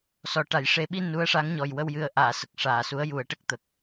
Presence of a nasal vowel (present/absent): absent